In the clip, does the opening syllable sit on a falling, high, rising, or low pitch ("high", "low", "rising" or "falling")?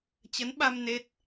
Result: rising